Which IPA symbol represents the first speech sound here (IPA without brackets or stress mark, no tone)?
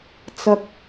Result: t͡s